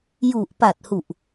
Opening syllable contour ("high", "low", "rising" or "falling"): low